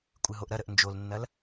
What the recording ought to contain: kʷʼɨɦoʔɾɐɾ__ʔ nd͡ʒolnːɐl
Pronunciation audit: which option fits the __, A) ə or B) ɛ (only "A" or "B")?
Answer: A